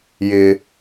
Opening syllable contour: high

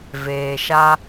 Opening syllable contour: low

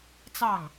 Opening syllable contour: falling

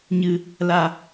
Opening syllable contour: low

